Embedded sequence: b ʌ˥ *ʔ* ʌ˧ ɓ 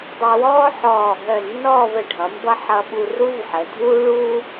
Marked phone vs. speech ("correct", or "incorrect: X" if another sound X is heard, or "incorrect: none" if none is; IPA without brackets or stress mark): incorrect: ħ